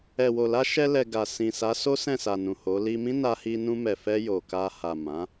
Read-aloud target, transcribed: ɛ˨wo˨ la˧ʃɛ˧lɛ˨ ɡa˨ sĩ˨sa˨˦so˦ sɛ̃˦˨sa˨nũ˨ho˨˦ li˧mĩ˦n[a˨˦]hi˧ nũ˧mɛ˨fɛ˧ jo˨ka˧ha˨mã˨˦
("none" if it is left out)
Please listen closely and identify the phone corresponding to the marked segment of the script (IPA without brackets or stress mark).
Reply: a˧